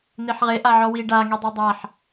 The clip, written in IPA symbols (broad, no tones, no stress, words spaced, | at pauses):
n̪eħʁe ʔaʕɔwi ɖa ŋidˤɤdˤaħ